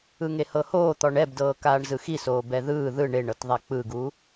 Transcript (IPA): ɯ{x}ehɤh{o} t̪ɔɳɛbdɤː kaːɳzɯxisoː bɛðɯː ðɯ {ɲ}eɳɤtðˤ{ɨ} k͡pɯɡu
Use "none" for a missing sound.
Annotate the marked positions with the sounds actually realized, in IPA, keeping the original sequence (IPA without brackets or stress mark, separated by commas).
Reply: ŋ, oː, ɳ, ɛ